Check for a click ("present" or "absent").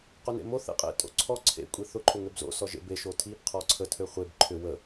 present